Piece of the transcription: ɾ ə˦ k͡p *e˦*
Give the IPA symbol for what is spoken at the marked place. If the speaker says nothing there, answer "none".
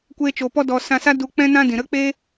e˦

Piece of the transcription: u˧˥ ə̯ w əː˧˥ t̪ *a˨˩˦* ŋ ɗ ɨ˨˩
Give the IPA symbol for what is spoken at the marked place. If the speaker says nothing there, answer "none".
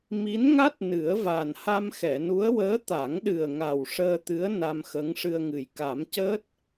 a˨˩˦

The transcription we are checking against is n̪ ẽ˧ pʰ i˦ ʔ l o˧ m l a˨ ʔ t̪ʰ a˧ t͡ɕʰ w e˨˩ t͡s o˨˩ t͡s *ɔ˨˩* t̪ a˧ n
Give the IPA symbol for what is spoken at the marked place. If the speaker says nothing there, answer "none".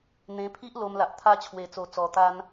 ɔ˨˩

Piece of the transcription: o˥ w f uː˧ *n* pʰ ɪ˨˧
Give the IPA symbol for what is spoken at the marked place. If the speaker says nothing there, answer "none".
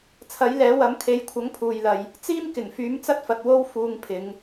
ŋ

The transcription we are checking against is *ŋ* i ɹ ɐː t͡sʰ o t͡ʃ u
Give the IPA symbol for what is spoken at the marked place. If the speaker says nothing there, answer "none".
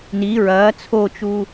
n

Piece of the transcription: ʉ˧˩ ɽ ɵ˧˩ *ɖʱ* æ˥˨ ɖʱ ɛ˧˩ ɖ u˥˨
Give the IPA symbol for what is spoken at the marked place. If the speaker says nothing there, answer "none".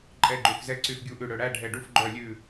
ɽ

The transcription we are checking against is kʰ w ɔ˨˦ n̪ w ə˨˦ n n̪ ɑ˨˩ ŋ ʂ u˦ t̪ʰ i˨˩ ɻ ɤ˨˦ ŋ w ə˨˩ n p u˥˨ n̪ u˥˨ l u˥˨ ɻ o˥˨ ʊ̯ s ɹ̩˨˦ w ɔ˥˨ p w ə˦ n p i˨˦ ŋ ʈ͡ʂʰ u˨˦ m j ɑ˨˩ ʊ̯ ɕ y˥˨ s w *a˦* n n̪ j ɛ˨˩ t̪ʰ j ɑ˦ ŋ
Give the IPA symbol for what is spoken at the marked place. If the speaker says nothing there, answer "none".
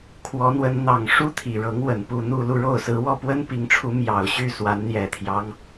a˨˦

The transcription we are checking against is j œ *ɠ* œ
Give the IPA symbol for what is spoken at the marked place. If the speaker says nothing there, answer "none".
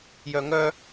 ŋ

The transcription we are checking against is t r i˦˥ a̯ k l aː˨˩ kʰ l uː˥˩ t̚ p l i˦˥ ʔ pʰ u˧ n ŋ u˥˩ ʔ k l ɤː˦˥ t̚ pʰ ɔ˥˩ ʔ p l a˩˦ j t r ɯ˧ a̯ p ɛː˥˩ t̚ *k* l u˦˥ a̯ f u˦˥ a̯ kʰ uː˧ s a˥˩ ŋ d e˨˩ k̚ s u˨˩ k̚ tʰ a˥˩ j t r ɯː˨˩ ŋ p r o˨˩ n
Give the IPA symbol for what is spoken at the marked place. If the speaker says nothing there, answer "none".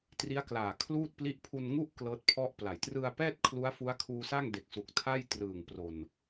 kʰ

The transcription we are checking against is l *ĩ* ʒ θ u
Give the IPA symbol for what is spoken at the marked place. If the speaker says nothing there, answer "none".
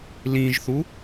ĩ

